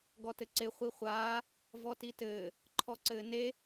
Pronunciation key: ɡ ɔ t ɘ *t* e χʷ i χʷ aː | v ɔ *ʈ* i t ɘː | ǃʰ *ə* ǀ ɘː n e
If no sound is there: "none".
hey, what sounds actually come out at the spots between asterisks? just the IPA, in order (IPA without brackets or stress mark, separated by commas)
ǀ, t, ɔ